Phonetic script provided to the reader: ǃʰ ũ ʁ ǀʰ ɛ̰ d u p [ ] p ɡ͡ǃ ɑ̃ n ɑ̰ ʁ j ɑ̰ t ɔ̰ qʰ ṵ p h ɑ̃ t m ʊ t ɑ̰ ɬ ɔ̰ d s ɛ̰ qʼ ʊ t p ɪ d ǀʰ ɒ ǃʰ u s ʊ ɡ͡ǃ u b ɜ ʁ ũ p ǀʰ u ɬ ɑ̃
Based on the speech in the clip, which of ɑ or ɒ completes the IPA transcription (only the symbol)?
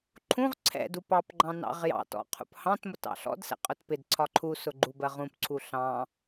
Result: ɑ